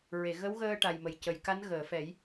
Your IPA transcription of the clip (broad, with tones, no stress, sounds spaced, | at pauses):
ɹ e˨˩˨ ɣ ə˧˥ w ɣ əː˧ ʈ a˨˩ j m ə˨˩ j c ə˨˩ j k a˧˥ n ɣ əː˨˩˨ f ɛ˨˩˦ j